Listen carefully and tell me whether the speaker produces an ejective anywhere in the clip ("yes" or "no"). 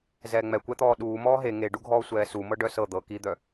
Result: no